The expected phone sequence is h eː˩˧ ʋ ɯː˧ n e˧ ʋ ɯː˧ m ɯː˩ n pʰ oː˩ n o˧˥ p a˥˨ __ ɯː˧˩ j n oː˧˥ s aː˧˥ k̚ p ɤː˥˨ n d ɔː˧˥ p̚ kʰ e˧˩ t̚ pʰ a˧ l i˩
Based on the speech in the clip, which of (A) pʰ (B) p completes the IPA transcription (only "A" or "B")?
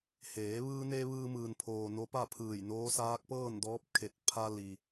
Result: A